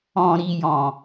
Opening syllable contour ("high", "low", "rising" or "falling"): low